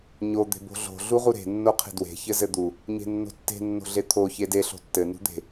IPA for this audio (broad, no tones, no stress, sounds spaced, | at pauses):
ɲ o d̪ e̤ b o̤ ɮ o̤ ɮ u ʁ u ɾ e̤ nː o qʰ e̤ d w e̤ ç ɘ z ɘ d̪ u | ɲ e̤ nː o̤ tː e̤ nː o̤ ɮ e t̪ʰ o ç e d e ɬ o̤ tː ɘ n ṳ d̪ e̤